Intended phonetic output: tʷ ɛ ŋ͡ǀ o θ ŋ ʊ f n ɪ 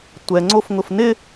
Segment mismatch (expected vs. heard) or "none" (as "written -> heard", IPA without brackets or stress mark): θ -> f